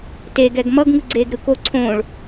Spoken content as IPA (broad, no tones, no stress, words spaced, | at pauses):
teɡɛɡ mʌɡŋɯɡ͡ǀeːɡ ɾɯko ǀʰõːɭ